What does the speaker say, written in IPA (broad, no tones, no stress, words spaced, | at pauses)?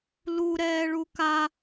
luɾɛː ɭuka